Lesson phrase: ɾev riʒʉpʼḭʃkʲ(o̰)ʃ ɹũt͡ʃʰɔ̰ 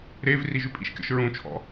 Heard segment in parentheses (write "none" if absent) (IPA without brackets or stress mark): ɔ̰